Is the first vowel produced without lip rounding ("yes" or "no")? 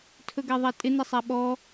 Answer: no